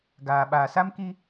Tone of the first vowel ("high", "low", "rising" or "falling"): low